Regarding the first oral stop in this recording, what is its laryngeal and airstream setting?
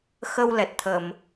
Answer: plain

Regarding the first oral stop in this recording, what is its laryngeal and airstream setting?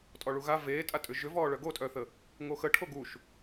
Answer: ejective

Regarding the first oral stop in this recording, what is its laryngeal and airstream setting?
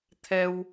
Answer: aspirated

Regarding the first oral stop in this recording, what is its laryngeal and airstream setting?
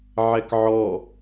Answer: plain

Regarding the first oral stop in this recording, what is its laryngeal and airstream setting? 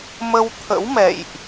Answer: aspirated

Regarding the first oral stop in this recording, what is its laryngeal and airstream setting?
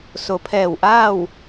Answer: aspirated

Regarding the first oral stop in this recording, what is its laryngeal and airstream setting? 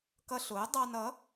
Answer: plain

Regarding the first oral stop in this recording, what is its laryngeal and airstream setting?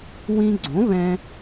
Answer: click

